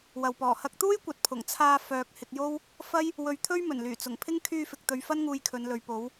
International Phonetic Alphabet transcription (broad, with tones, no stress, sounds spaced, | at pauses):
w ɐ˨ w p ɔː˨˩ h ɐ˧ k̚ t̪ uː˥ j kʷ ɐ˨˥ t̚ pʰ ʊ˨˩ ŋ t͡sʰ aː˧ f œː˨ k̚ h ɪ˧ k̚ j o˥ w | f ɐ˥ j | w ɵ˧ ɥ t̪ʰ ɵ˥ ɥ m ɵ˨˩ n l yː˨˩ t͡s ʊ˨˩ ŋ pʰ ɪ˥ ŋ kʰ yː˧ f ɪ˨ k̚ t̪ ɵ˨ ɥ f ɐ˥ n ŋ uː˧ j kʰ ɵ˨˧ n l ɵ˨ ɥ p o˨˧ w